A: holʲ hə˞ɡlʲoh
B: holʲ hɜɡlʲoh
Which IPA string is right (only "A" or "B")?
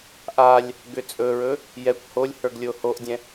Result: A